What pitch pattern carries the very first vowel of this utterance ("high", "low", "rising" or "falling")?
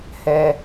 high